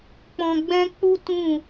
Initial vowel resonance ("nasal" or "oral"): nasal